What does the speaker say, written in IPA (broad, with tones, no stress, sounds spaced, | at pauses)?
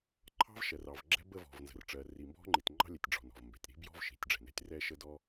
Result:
ǃʰ ɑ̤˥ v ʃ ɜ˩ r ɑ˩ v ɡ͡ǁ ɛ̤˥ b ə˥ v ɔ̤˩ v n z ə̤˩ r ʈ͡ʂ ɜ˩ r i˩ m b ɔ̤˥ ŋ͡ǃ i˩ t ŋ͡ǃ ɑ̤˥ lʲ ɛ˩ tʲ ɖ͡ʐ ɔ̤˩ n ɔ̤˩ v m b ɛ̤˩ tʲ ɾ i̤˥ b j ɔ̤˥ v ʃ i̤˩ tʲ ɖ͡ʐ ɛ̤˩ n ɛ̤˥ tʲ r ɛ˥ ʃ ə˥ d ɔ˥